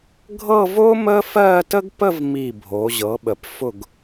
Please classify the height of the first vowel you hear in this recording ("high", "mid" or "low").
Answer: mid